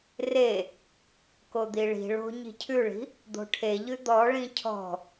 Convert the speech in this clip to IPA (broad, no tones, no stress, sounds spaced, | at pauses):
r e | k o d̪ i ɭ i̤ ɭ o̤ ɲ i̤ cʰ ʉ ɭ i̤ | d̪ o̤ ʈʰ e ʎ ʉ d̪ ɔ ɭ ĩ cʰ ɔ̤